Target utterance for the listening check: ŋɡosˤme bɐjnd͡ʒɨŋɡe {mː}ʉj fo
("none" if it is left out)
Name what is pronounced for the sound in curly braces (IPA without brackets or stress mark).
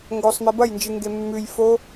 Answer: mː